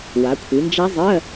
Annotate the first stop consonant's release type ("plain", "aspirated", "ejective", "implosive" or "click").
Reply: aspirated